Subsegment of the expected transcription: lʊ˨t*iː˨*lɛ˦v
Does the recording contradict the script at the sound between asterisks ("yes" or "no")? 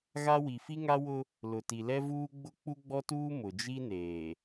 yes